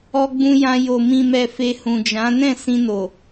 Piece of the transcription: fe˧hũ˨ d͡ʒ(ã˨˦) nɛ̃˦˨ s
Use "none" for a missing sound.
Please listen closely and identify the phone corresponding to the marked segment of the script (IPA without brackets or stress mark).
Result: ã˨˦